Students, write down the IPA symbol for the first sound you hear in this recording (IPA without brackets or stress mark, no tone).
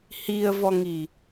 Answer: h